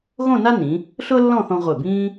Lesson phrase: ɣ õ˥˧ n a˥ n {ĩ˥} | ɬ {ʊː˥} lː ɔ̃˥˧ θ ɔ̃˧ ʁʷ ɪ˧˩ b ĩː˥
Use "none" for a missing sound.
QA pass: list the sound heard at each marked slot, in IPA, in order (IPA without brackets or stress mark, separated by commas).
ĩ˩˧, ʊː˥